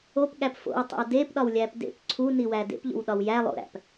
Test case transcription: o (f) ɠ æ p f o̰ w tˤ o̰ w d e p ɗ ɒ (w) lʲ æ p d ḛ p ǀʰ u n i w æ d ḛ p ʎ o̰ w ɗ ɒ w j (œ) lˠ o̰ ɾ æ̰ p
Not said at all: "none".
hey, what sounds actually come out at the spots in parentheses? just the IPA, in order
p, w, æ

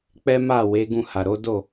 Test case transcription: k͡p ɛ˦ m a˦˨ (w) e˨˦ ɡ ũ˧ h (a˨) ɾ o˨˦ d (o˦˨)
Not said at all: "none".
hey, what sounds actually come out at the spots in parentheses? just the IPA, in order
w, a˨, o˦˨

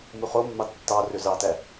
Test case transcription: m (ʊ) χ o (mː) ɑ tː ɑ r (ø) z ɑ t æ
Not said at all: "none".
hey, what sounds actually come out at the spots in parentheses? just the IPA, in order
u, mː, ø

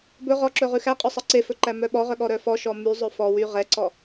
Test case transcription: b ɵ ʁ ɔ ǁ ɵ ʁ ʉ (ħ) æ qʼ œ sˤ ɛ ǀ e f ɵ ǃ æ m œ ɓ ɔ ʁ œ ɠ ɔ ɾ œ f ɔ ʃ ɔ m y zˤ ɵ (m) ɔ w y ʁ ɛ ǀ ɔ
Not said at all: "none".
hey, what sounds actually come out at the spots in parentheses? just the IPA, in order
x, f

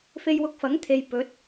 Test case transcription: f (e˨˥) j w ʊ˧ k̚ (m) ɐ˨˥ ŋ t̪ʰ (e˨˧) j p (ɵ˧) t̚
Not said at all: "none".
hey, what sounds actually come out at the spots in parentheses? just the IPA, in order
e˧, f, e˨, ɵ˨˥

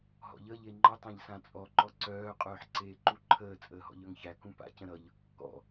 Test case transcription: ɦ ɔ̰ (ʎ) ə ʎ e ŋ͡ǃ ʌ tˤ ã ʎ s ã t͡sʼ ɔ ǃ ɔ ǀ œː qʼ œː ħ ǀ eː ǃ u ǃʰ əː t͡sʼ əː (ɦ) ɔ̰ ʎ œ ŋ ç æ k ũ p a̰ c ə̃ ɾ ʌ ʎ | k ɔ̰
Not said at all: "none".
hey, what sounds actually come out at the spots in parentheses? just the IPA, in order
ʎ, ɦ

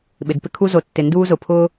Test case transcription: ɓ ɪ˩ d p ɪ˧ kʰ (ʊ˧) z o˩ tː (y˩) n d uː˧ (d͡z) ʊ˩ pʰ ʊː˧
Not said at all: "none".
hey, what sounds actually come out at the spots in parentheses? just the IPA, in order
u˧, ɪ˩, z

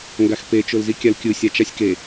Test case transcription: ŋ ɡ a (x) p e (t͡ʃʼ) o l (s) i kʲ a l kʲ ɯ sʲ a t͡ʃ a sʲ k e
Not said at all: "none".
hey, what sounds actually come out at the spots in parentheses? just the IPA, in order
x, t͡ʃ, z

